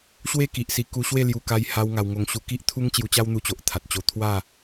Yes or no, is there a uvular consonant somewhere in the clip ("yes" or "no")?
no